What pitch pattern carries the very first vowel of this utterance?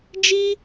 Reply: high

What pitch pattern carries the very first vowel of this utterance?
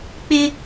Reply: high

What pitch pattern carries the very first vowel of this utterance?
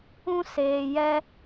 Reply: high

